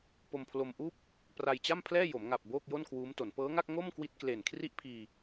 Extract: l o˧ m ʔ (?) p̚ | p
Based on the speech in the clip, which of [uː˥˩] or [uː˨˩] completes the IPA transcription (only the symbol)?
uː˥˩